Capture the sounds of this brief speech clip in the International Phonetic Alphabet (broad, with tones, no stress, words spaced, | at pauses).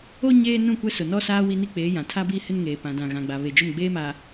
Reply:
o˦ ɲeː˦ nũ˦˨kʷɛ˦sʊ˨ nɔ˦saː˦ wi˦ni˦k͡peː˨˦ jã˨tʰa˦biː˦ hɪ˦nŋeː˨ pã˨dã˨ɣã˨ɡ͡ba˨ βe˨d͡ʒʊ˦˨m ɡ͡beː˦maː˨